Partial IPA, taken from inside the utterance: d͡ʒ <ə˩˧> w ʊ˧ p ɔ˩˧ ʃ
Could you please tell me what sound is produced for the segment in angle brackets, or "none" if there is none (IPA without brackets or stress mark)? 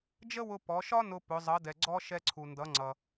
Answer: ə˥